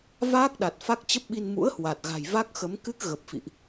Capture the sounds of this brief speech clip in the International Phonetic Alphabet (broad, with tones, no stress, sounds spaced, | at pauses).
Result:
v aː˦˥ k̚ ɗ a˨˩ t̚ f a˦˥ k̚ t͡ɕ ə˦˥ p̚ ɓ i˧ n m ṵ˧˥ ə̯ h w a˨˩ t̚ ɣ a̤˨˩ j v a˦˥ k̚ x ə˨˦ m k ɨ˦˥ k̚ ɣ ə˨˩ p̚ f ḭ˧˨ ʔ